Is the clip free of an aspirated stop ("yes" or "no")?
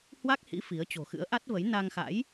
yes